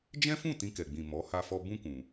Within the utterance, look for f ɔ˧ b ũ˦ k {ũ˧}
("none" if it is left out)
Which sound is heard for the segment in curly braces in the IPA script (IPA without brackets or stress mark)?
ũ˧